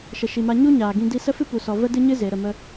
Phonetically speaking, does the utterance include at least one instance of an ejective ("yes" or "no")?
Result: no